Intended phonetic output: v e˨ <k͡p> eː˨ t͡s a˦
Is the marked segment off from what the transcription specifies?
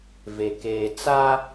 yes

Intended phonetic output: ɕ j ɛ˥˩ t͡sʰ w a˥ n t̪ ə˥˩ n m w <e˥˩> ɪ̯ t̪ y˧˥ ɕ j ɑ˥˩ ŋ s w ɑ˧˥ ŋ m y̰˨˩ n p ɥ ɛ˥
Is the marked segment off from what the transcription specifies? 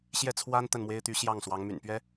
yes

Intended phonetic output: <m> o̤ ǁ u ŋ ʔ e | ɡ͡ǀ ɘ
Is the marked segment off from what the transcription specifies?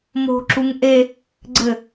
no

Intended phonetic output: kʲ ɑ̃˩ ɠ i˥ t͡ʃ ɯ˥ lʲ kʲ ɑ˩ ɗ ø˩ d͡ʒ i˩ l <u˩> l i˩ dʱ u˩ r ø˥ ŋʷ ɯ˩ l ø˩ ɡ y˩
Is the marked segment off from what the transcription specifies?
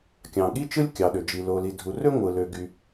yes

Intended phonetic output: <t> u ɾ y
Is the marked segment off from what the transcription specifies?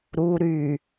yes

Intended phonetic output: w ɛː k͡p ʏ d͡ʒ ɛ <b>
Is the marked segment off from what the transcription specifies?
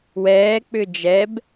no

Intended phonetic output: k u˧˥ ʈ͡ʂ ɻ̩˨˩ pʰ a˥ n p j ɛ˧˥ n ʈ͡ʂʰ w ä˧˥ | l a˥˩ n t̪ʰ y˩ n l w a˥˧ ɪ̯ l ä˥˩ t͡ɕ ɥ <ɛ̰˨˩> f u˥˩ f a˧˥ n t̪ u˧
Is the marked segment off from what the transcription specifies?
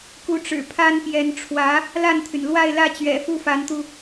no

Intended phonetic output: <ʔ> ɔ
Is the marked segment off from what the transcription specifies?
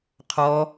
yes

